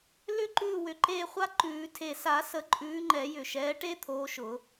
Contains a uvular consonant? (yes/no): yes